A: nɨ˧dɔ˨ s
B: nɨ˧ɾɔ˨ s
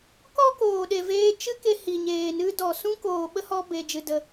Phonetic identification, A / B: A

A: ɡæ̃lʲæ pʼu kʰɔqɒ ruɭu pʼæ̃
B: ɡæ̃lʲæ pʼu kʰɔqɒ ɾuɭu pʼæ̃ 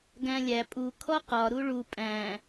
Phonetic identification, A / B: B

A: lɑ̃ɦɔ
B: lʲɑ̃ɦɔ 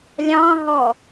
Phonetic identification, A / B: B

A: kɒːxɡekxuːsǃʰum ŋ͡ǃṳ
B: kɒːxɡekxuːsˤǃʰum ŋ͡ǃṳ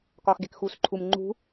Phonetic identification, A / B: A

